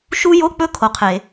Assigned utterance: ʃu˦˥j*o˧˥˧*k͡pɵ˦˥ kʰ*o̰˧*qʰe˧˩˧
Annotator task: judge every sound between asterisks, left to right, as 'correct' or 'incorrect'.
correct, incorrect: o˧

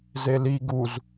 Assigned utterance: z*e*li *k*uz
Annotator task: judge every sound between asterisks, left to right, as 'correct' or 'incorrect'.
correct, incorrect: ɡ

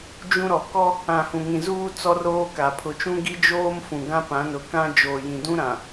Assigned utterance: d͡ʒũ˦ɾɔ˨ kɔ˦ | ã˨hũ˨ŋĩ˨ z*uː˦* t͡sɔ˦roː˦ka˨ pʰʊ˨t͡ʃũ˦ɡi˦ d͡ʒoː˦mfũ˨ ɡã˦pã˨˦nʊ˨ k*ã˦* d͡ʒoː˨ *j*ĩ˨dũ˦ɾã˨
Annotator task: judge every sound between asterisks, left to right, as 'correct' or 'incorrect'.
correct, correct, correct

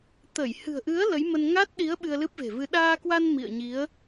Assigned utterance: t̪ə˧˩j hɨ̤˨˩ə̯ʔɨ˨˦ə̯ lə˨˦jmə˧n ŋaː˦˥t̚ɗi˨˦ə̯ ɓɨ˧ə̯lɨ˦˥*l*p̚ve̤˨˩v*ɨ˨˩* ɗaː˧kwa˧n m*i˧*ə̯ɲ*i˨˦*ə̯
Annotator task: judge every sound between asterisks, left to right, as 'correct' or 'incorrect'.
incorrect: none, incorrect: ɨ˧, incorrect: ḭ˧˨, correct

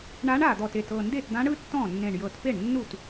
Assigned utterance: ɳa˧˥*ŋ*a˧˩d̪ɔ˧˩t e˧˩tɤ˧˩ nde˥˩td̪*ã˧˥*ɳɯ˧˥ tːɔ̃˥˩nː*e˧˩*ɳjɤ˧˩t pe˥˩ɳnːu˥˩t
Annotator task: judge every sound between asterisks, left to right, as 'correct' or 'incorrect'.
incorrect: ɳ, correct, incorrect: ẽ˧˩

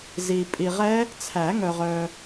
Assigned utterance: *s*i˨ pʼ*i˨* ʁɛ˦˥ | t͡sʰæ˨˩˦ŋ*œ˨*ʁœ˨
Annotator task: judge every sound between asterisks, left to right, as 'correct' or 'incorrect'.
incorrect: z, correct, correct

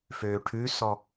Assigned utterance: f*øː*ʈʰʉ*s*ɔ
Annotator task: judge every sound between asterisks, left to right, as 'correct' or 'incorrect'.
correct, correct

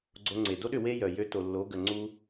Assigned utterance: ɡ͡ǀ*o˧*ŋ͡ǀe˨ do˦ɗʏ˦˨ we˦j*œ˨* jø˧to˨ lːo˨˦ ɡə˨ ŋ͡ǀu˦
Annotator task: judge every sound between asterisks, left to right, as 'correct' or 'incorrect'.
correct, correct

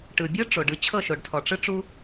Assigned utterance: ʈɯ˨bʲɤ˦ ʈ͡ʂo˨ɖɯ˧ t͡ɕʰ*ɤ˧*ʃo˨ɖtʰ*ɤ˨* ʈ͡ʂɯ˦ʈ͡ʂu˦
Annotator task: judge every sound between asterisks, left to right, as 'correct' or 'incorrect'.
incorrect: ɤ˦˨, incorrect: ɔ˨

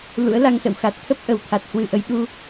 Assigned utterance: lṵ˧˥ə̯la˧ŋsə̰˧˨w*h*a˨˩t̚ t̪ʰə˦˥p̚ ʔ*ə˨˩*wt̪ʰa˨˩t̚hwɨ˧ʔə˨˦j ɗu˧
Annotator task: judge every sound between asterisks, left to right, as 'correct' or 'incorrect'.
incorrect: x, correct

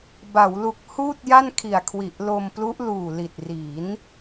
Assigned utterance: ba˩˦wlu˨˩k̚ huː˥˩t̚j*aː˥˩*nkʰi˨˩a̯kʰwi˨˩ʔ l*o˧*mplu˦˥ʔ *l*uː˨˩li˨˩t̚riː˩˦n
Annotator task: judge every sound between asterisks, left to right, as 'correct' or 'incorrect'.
incorrect: a˥˩, correct, correct

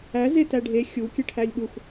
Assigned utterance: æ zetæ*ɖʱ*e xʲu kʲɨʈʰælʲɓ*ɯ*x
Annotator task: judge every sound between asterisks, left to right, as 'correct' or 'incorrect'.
correct, incorrect: u

